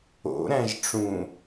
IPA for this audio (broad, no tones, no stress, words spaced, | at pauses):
o̰ɾæ̃ʒ ʈ͡ʂũ